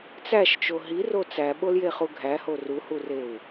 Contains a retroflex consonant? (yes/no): no